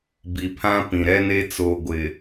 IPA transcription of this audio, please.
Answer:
b i˨ pʰ ã˦ p ĩ˨ ɾ ɛ˦ n e˦ t͡s o˨ ɡʷ ɪ˨

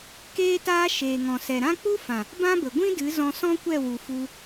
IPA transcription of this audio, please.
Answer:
k eː˦ t aː˦ ʃ eː˨ ŋ ɔ̃˨ s ɛ˨ ɾ ã˦ k͡p u˦ f ã˨ | b ã˦ b ə˨ ɡʷ ĩ˦ d ɨ˨˦ z ɔ̃˧ s ɔ̃˦ kʷ ɛ˦˨ w u˨ f u˧

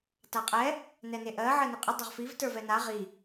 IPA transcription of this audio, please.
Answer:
t a qʼ ɛ | n ɛ n e ʔ ɜ ʕ ɜ n ɪ qʼ ɪ dˤ ɪ ʁ f i v t ə˞ v ɛ n a ʁ i

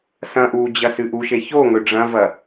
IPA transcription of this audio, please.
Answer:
s ɐ̃ ʔ uː d͡ʑ ɐ s ɨ ʔ u ʃ e ç o ŋ ɵ ɖ͡ʐ ɐ̃ v ɐ

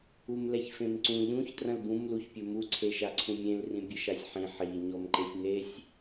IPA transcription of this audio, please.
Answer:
u m l ɛ ç f ẽ m ǀ ũ ʎ ũ ç t r ɐ̃ l b ũ m l u ç pʲ ɘ m u ǀʰ e ʃ a ǀʰ ũ mʲ ẽ l r ĩ bʲ ɘ ʃ a sʲ ħ ĩ ħ i ɲ ɔ m ǃ e sʲ n e sʲ

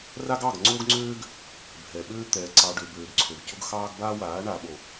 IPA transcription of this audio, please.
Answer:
r a˦ ɡ ɑ˦˨ ɡ ŋ͡ǀ o˦ ɡ ŋ͡ǀ øː˦ ɡ | bʱ ɛ˨ ɓ øː˦ t̪ ɛː˨ ǀ ɑ˨ ɖ ø˨ b øː˨ ɡ ǀʰ ø˨ ɡ c ʊ˦ ɡ x ɑː˦ ɡ b aː˦ w aː˨˦ ɳ a˨ ɓ o˨

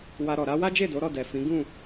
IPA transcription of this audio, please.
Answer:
w a˧ ɾ ɔ˨ ɾ a˧ w a˦ d͡ʒ e˦˨ d o˨˦ ɾ ɔ˦˨ d ɛ˨ f ĩ˨˦ ɡ ũ˦˨

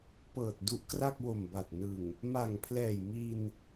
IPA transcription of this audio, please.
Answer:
p ɤː˨˩ t̚ d u˦˥ ʔ k r a˥˩ k̚ w o˨˩ m b a˨˩ t̚ n ɯ˨˩ ŋ | m a˨˩ ŋ pʰ l ɛː˨˩ j m i˧ n

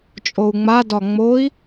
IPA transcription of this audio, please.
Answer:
t͡ʃʼ o u̯ ŋ͡m a d ɒ ŋ͡m o i̯

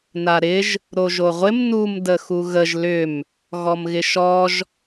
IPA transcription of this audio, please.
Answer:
n a ɾ ɪ ʒ | ɾ o ʒ o ʁʷ ɪ m n u m d ə x u ɣ ə ʒ l ʏ m | ɣ ɔ m ɣ ɪ ʃ ɔ ʒ

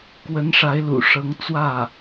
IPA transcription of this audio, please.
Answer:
k w ə˧˥ n ʂ a˧˥ ɪ̯ l ṵ˨˩ ʂ ɤ˧˥ ŋ t͡s w ä˥˩

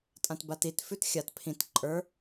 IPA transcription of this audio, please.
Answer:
tʼ ã t b a t i t f ʉ t xʲ a t pʰ ĩ t ǃʼ ə˞

